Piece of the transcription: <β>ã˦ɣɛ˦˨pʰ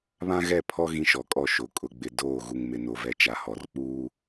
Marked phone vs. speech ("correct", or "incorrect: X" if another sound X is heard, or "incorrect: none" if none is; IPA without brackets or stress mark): correct